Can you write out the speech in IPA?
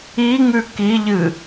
iŋʉ kiʎɨ

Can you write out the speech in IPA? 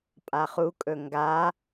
pʼaχu kʼɵŋɡa

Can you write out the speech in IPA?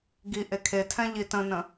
ɡi ʔekʰetʰɛ̃ ʎitə̃nə̃

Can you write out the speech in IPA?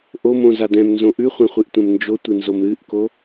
ʔomõza dɛ̃mnzõ ʔʉχʷɛ̃χʷɨʔtʷɛ̃m nd͡ʒotʷɨnzom ɾɨʔko

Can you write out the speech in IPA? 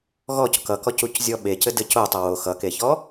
ɣɔc kʌkɔcuczʲɔ ɓecɘdɘ cotˤʌ wo xʌkeçɔ

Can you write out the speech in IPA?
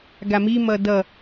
ɡami mʌdʌ

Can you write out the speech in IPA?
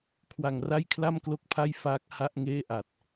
kʰwa˨˩ŋra˥˩j kʰla˥˩mklo˥˩k̚pʰa˥˩j faː˦˥k̚ ha˥˩ʔŋeː˥˩ ʔa˨˩t̚

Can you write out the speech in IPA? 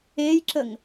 ejǁəŋ

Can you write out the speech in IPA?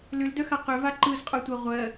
lʏldœxa qʏva ǃɯzqʼœtʷɜ ʁʷɜ

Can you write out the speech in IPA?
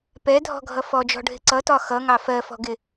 pɛdʱɔ̤ɡʱʌ fɔd͡ʒɔ̤ɖʱɪ ǀʌtɒ xʌŋɑ fɜfɔ̤ɡɪ

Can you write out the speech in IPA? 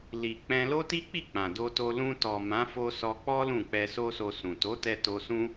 li˨k͡pɛ̃˧ lo˦ti˦k͡pi˦˨ k͡pã˨do˧to˧ lũ˧tɔ˨mã˨˦fo˧ sɔ˧k͡pɔ˦ lũ˦˨k͡pɛ˧ so˦so˧sũ˨ to˨˦tɛ˧ to˧sũ˦

